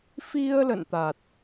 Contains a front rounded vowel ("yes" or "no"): no